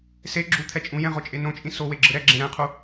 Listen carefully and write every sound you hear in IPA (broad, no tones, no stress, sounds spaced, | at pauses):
s e ɡ͡ǁ u t̪ʰ ɛ t͡ʃʼ ũ j ɛ̃ ʁ o t͡ʃʼ e n õ t͡ʃʼ ĩ s o w e ɡ͡ǁ ɯ ɾ ɛ ɡ͡ǁ ẽ ɾ ɛ̃ qʰ u